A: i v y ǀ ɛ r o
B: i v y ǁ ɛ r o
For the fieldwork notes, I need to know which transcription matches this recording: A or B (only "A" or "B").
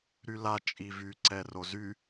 A